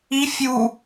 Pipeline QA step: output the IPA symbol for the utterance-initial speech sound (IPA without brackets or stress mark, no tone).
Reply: i